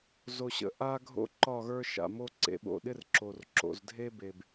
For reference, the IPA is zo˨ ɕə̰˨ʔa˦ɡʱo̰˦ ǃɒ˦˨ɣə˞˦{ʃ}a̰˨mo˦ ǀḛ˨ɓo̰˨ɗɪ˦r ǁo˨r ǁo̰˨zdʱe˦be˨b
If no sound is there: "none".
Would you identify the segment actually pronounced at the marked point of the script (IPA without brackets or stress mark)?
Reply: ʃ